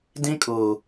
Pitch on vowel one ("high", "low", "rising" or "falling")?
high